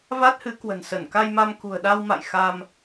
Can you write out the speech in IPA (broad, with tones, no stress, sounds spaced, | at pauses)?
v a˦˥ t̚ h ɨ˨˦ k w ə̤˨˩ n s ə˧˩ n k a˧ j m a˧ m k ṳ˨˩ ə̯ ɗ a˧ w m a̰˧˨ j x a˧ m